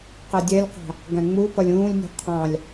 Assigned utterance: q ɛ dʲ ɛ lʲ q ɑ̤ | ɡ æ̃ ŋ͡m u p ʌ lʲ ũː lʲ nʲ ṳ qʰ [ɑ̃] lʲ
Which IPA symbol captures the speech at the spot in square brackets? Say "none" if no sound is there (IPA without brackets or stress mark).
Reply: ɑ̃